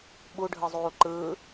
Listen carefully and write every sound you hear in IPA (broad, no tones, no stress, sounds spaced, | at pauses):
ɓ u ɖʱ ɯ zˤ uː ǃ ɯː